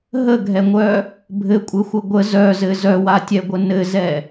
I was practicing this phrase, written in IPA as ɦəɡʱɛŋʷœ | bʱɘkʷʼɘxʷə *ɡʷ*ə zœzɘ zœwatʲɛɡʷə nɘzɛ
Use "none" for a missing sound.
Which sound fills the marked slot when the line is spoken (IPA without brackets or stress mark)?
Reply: ɡʷ